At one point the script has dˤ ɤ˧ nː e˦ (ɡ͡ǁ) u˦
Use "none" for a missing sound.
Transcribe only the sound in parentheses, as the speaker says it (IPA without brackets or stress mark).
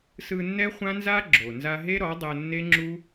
ŋ͡ǁ